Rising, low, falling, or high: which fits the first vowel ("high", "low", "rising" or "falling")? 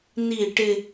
falling